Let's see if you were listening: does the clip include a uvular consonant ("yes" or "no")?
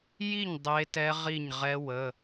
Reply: yes